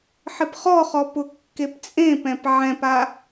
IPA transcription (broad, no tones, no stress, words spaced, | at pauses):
ħɪpχɔχɔ pʊkːept͡sʼẽpɛ̃p ʕɛ̃pa